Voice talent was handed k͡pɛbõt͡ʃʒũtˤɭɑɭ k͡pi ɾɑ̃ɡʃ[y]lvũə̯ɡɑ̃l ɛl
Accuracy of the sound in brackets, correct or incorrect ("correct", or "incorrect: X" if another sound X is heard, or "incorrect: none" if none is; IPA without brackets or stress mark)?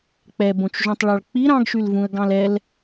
correct